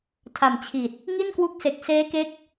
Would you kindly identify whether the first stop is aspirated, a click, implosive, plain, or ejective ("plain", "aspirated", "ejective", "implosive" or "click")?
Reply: aspirated